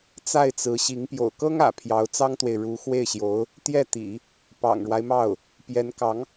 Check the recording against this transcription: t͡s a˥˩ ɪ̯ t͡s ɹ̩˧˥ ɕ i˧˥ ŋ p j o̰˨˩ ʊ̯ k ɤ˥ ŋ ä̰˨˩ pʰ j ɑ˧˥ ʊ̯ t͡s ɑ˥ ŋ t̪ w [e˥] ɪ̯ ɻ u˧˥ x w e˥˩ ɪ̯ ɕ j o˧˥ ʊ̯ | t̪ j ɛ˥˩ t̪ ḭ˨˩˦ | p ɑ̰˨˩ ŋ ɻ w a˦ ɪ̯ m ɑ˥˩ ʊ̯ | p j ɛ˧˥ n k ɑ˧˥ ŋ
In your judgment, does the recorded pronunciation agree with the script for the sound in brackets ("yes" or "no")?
no